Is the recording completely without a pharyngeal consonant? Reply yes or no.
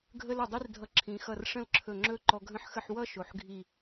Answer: no